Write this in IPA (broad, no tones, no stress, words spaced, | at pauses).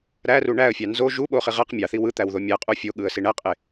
ɾæru ɳæə̯fʲɑ nzo ʒuɓoχi ʁæq mʲɑθi wɯt̪æwðo mʲæqʼu fʲoɠɯə̯si ɳæqʼe